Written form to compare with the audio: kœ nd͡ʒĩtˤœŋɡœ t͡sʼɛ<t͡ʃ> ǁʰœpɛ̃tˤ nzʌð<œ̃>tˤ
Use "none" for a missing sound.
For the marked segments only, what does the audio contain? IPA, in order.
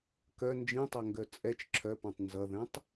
t͡ʃ, ɛ̃

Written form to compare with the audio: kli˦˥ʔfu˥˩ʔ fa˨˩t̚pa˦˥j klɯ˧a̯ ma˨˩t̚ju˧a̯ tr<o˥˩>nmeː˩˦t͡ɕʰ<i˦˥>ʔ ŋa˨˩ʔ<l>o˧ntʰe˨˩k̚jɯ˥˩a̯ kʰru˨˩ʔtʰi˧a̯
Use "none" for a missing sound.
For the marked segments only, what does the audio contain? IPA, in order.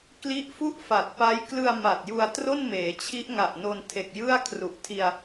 o˥˩, i˦˥, n

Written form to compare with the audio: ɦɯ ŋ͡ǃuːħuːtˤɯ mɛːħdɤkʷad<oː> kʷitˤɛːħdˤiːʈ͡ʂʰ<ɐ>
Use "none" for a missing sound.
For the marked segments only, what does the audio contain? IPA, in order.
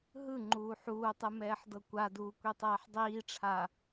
uː, a

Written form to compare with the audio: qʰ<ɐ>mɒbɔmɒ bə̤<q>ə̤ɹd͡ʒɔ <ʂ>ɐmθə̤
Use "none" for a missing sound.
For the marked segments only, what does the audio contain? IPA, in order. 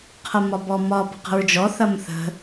ɐ, q, θ

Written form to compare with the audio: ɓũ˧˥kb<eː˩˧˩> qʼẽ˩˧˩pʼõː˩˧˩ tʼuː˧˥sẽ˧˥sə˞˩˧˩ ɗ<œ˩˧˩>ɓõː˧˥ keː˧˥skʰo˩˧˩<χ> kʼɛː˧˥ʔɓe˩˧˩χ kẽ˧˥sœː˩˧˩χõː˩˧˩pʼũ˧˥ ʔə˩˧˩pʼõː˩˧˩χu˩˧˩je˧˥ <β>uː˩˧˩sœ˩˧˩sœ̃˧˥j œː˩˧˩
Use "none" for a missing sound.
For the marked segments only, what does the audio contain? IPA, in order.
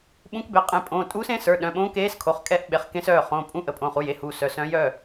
e˩˧˩, œ̃˩˧˩, χ, h

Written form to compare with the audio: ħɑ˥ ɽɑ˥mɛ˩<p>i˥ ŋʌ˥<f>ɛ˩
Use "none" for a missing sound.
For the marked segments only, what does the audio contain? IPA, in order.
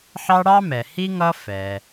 h, f

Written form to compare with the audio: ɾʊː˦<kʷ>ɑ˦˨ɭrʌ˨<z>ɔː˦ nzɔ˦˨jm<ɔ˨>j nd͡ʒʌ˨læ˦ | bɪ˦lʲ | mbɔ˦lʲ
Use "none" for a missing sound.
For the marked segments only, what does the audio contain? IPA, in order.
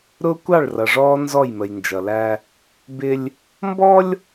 kʷ, ʐ, ə˨

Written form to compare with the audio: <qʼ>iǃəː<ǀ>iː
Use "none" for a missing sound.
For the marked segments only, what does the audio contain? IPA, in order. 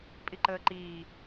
pʼ, ǃ

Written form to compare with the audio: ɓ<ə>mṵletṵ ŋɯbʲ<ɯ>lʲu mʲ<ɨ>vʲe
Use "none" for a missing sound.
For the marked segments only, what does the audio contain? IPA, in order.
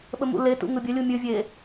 ə, ə, ɨ

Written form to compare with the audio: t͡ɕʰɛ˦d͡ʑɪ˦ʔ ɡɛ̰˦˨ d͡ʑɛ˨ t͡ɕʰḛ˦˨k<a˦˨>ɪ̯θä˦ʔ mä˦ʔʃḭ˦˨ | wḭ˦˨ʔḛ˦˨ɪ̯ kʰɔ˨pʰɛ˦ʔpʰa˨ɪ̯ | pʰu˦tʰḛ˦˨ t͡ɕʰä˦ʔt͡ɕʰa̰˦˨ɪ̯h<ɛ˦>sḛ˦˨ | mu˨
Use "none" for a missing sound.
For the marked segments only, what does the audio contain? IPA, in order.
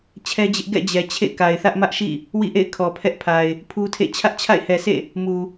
a˨, ɛ˨

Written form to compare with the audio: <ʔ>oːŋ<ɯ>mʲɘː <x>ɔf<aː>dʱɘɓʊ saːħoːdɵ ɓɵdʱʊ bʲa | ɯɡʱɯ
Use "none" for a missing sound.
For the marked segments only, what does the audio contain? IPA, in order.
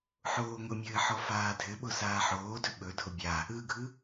ħ, ʊ, ħ, aː

